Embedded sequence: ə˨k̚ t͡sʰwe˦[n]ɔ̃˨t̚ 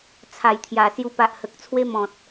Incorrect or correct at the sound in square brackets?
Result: incorrect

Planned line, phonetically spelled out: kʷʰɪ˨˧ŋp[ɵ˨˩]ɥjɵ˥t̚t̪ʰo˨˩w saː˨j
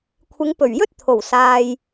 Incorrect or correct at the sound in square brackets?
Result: correct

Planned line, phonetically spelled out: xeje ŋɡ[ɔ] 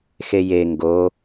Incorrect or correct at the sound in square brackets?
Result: incorrect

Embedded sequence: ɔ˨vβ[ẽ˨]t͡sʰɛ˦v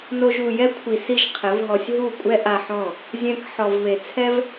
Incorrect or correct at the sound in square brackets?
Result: incorrect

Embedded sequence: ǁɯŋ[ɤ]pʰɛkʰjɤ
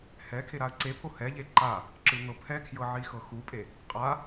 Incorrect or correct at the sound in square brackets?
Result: correct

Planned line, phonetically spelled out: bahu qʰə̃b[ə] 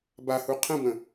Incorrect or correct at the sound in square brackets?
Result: incorrect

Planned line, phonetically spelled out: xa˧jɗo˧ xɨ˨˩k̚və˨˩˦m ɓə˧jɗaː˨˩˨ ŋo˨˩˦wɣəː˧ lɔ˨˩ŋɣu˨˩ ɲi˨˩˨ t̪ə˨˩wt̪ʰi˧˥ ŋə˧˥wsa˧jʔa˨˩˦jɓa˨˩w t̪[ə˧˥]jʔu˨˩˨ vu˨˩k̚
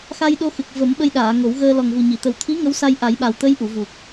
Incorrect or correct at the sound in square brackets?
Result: correct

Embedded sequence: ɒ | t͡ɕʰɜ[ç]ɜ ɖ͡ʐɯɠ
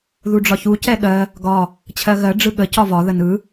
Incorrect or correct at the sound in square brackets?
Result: incorrect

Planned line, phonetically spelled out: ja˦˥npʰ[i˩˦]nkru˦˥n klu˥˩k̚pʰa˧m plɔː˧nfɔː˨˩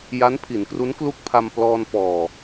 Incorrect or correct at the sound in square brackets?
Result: correct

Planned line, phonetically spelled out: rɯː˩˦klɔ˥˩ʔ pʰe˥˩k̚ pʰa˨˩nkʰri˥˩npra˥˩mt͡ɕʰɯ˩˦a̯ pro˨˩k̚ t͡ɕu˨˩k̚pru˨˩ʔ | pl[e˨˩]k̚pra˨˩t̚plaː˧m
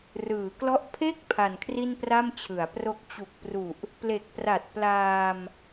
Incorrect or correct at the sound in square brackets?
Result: correct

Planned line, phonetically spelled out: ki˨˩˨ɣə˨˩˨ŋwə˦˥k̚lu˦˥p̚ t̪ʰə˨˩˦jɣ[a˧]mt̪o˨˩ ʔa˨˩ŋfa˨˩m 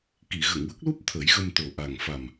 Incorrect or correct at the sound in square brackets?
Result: incorrect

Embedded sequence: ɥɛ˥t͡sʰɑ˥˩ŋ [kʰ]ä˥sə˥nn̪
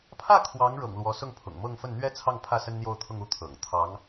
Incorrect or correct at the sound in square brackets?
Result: incorrect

